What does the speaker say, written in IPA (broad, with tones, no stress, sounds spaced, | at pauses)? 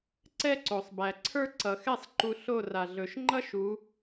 ǀ ɛ˥ ǀ o˩ sˤ b æ˩ ǀʰ ə˞˥ ǀ ʌ˩ x ɛ˥˨ sˤ ǃ u˧ ɬ o˥˨ r a˩ ɮ ɵ˩˧ ʃ ŋ͡ǃ ʌ˥ ʃ u˩˧